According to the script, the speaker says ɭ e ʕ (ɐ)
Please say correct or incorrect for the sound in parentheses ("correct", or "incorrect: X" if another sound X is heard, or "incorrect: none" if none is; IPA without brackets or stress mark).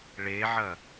correct